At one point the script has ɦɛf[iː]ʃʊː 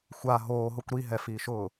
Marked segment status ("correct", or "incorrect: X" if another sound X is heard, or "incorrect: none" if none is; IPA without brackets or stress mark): correct